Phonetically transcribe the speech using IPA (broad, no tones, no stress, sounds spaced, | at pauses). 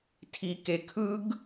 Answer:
tʰ i k e kʰ ɯ ɡ